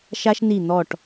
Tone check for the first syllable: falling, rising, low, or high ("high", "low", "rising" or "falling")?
high